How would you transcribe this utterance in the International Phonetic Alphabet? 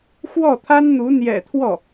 x w ɔ˥˩ t̪ʰ a˥ n n̪ u˧˥ n̪ j ɛ̰˨˩ t̪ʰ w ɔ˥˩

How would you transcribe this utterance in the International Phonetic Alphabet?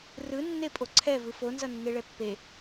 r ɯ nː e pʼ o ǀʰ ɛ v ɯ f o n z ʌ nː e ɭ ɛ pː e

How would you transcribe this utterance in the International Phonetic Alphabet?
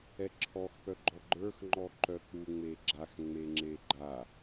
ɛ ǁʰ ɔ x p œ ɡ͡ǃ ɔ ɡ͡ǃ ə˞ x ŋ͡ǃ ɔ ǃ œ k͡p u ŋ͡m e ɡ͡ǁ a x ŋ͡m e ŋ͡ǁ e ɡ͡ǃ a

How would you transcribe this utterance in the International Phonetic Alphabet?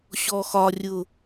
ɕ ɔ x ɒ rʲ ʊ

